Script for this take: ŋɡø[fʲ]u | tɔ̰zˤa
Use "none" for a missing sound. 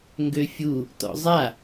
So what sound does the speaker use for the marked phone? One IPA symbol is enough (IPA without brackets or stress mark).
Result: fʲ